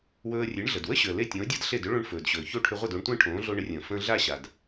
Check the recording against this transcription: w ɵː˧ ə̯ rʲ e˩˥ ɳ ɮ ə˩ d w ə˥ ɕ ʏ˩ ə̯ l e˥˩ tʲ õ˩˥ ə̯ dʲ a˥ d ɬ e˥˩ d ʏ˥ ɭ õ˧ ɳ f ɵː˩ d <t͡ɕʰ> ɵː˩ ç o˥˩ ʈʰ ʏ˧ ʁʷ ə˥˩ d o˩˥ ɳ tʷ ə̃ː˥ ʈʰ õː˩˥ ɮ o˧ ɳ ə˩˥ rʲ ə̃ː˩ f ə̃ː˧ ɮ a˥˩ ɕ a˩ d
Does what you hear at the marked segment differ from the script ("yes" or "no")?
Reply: yes